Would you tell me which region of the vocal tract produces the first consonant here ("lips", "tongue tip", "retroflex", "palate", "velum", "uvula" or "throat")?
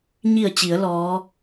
palate